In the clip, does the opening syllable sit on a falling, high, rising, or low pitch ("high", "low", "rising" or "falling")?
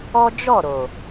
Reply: high